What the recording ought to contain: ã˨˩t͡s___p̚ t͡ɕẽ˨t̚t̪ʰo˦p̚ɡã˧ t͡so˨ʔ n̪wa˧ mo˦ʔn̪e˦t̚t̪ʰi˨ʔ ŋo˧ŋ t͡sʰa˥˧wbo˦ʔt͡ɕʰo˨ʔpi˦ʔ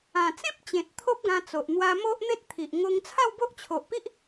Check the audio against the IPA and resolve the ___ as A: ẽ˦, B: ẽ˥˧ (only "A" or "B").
A